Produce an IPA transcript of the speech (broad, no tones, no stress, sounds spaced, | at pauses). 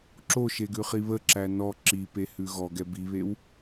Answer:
ǁ o ʃ e ɡ ʉ χ i β ə ǁ æ n ɔ ǁ i p e h ʉ ɣ ɔ ɡ ɛ b i β e w